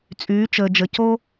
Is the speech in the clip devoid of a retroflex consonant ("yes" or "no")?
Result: yes